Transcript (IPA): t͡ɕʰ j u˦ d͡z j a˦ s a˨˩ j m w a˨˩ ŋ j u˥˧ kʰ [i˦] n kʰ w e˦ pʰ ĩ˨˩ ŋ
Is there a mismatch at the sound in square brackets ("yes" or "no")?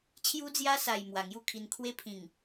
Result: yes